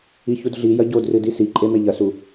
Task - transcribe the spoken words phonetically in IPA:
i ç u d ɮ i j ɐ ɟ o d r ɨ d i s i ǃʼ e m e ʎ ɐ s u

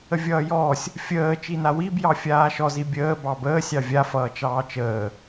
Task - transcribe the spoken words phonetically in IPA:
ə vʲ ʌː j ɔː sʲ | fʲ əː t͡ʃ i n a w i b j ɑ fʲ aː ʃ ɔ z i bʲ əː b ɑ b əː sʲ ɑ vʲ a f ʌː t͡ʃ ɑː t͡ʃ əː

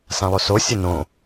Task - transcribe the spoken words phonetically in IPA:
s ã lˠ o s o sʲ ə n õ

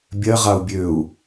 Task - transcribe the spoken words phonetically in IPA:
bʲ ɜ ʁ a u̯ bʲ ø u̯

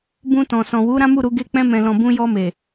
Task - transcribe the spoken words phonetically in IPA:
b ũ˧ t ɔ̃˨ s ɔ̃˨ w u˨˦ ɾ ã˦ m u˦˨ ɾ u˧ ɡ e˧ k͡p ɛ̃˧ m ɛ̃˨ l ɔ̃˨ b ũ˧ j ɔ˧ m e˨

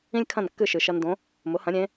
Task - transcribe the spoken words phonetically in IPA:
ĩ˥ lʲ kʰ ɐ̃˥˩ n kː ɨ˥˩ ʃ ɨ˩ ʃ ɐ˧ n d õ˩˥ | m ʊ˩˥ h ɐ̃˩˥ ɾʲ ẽ˩˥

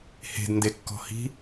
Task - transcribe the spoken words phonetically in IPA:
h e̤ d n d e kː ɔ̤ h i̤

